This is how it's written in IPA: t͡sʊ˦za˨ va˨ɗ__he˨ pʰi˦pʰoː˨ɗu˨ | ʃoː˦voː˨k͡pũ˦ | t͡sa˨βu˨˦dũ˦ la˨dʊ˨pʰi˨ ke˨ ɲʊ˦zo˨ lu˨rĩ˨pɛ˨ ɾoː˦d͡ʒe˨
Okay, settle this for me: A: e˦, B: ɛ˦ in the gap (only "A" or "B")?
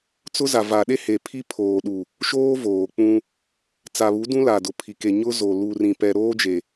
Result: A